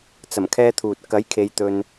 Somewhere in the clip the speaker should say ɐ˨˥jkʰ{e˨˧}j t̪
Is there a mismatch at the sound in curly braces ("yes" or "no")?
no